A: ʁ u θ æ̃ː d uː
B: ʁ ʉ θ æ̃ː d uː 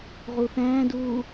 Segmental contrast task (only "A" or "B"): A